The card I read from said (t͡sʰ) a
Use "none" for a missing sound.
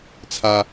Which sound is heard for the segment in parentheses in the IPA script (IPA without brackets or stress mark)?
t͡sʰ